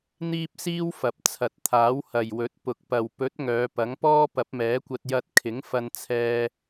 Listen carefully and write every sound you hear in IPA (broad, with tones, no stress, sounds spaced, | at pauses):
n̪ iː˥ p̚ s iː˥ w f ɐ˨ p̚ t͡sʰ ɐ˨ t̚ t̪ʰ aː˨˥ w h ɐ˨ j w ɵ˨˥ t̚ p ʊ˨ k̚ p ɐ˨ w p ɵ˨˥ t̚ ŋ œː˨˧ p ɐ˨˥ ŋ p ɔː˥ p ɐ˨˥ p̚ m ɛː˨˥ kʷ ɐ˧ t̚ j ɐ˧ t̚ kʰ ɪ˨˥ ŋ f ɐ˧ n t͡sʰ ɛː˧